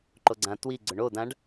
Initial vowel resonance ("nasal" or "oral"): oral